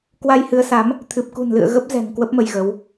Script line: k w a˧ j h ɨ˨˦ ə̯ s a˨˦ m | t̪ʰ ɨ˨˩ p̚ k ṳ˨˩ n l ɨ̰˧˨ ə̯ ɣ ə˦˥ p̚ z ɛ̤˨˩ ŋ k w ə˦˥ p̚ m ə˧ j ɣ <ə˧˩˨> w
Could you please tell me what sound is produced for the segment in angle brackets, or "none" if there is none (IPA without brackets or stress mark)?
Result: ə˨˦